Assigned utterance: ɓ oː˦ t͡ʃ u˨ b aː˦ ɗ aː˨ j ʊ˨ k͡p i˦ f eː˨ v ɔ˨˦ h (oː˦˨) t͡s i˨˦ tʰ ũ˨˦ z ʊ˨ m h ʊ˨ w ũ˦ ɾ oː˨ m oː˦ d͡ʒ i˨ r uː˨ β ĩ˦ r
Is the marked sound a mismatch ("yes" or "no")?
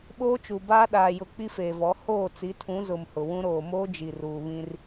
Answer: no